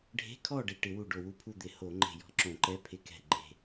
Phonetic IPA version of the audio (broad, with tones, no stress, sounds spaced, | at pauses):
ɖʱ e̤˧˥˧ kʰ ɔ˥˨ ɖ e˧˩ ʈ ɪ˧˩˧ w u˧˩ ɖ o˧˩ w u˥˨ pʰ u˥˨ d̪ ɪ˧˩˧ h o˧˩˧ ŋ͡ǃ e̤˧˩ j ɔ̤˧˥˧ ǁ õ˧˩˧ ǃ ɛ˧˥˧ pʰ ɪ˧ k ɛ̤˧˩ ɡ͡ǃ e̤˧˩